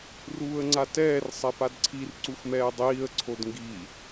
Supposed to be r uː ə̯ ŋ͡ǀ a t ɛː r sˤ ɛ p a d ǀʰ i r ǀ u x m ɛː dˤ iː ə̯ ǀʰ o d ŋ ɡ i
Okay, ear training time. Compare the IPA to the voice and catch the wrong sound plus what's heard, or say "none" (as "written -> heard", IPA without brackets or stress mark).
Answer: none